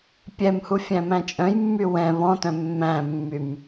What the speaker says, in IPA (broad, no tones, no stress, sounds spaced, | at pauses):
pʲ ɛ m h u fʲ æ̃ m æ̃ t͡ʃʼ œ̃ j mː y w ɛ̃ β ɔ̃ t œ̃ mː æ̃ mː y m